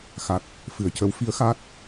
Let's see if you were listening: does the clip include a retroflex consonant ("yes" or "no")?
no